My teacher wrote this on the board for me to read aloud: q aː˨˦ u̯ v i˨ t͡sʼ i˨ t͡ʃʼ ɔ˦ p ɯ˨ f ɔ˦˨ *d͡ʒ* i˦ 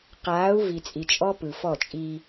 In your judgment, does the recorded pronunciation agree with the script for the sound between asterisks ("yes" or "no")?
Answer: no